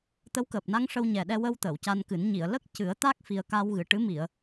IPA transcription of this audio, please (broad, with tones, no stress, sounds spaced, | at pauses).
t̪ ə˧˥ w k əː˨˩ p̚ n a˧ ŋ ʂ ə˧ w ɲ ɛ˨˩ ɗ ɛ˧ w ə˧ w t̪ əː˨˩˨ w c a˧ n k ɨ˨˩˦ n ɲ i˨˩˨ ə̯ l ə˦˥ k̚ c ɨ˨˩˦ ə̯ t̪ a˦˥ k̚ f i˨˩ ə̯ k a˧ w ɣ ɨ˨˩ ʈ ɨ˧˥ m i˨˩˨ ə̯